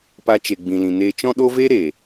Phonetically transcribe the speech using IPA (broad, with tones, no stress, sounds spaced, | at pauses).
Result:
p a˧ t͡ʃ e˨ ɡ͡b ĩ˨ l ĩ˨ n eː˧ t͡ʃ ɔ̃˦ ɗ o˦ v eː˦ ɾ eː˨